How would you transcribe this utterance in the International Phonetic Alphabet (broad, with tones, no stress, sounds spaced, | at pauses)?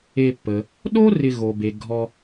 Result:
e˨ pː ə˩ | ɗ o˥ r ɪ˨ ɣ o˩ b e˩ ɡʱ ɔ˨